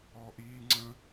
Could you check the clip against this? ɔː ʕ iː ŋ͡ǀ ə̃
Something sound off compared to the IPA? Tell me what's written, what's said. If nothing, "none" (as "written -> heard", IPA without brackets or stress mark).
ʕ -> ʔ